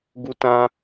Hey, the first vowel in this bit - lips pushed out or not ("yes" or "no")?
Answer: yes